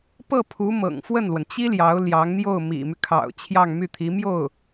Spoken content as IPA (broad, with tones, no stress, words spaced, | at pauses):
pɤ˥˩pʰu˧˥ mɤ̰˨˩ŋfwə˥˩nlwə˩n t͡ɕi˥ ljɑ˧˥ʊ̯ljɑ˧˥ŋn̪jo˥˩ʊ̯ mḭ˨˩my˦kʰɑ̰˨˩ʊ̯ t͡ɕʰjɑ˥˧ŋmy˥˩t̪ʰi˧˥mjo˥˩ʊ̯